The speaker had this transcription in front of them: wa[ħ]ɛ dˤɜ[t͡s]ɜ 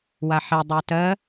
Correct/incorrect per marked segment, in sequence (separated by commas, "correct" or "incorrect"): correct, incorrect